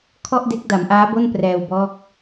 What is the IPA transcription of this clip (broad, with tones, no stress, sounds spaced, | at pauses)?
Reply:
kʰ ɔ˥˩ ʔ d e˦˥ k̚ d a˩˦ m ʔ aː˦˥ b o˥˩ n p r ɛː˧ w b ɔː˦˥ k̚